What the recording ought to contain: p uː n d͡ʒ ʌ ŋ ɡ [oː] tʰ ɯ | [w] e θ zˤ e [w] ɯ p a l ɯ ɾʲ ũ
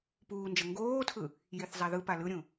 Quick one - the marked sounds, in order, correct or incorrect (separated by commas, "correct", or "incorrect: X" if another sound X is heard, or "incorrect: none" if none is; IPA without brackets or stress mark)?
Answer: correct, incorrect: j, incorrect: ð